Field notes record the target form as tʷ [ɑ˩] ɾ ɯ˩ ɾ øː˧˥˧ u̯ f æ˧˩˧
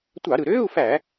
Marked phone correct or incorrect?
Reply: incorrect